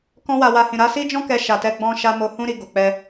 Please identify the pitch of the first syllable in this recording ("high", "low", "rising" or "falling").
high